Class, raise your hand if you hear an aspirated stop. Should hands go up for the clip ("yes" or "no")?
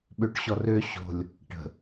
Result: no